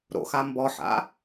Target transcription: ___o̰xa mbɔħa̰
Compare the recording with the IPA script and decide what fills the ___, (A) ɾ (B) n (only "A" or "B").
A